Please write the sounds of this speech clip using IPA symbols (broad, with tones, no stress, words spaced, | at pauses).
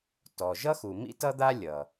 tɔ˩ʒʌ˥xu˩ mḭ˥ tʌ˥d̪a˥ lʲʌ˩